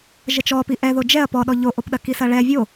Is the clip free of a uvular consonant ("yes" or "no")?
yes